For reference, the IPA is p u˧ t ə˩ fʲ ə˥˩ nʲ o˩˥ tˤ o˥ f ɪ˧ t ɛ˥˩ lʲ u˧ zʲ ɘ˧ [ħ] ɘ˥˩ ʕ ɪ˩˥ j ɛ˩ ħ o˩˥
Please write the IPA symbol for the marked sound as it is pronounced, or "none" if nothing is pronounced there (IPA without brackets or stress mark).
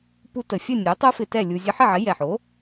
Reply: ħ